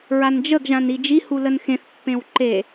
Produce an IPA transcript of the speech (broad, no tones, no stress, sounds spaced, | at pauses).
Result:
ɹ a n d͡ʒ ə ɡ ʒ ã n i d͡ʒ i h u l ə n x ẽ θ pː ẽ w ǃ e